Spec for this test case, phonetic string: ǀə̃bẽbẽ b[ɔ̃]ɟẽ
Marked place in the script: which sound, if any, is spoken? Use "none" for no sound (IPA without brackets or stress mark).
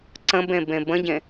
ə̃